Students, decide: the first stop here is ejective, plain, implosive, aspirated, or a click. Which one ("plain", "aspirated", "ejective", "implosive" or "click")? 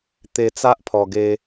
plain